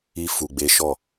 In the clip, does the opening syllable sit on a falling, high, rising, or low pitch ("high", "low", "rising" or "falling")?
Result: high